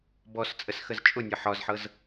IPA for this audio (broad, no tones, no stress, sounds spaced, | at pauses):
b ɔ s t͡sʼ ə s x ə z t͡ʃʼ ʊ nʲ ɤ ħ ɒ z ħ ɤ z